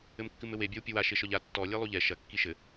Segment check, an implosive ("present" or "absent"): absent